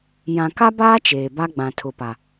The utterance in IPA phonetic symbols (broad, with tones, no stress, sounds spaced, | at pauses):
j ã˨ k a˦ b aː˦ t͡ʃ eː˨ b a˦ ɡ͡b ã˨ tʰ ʊ˨ p a˨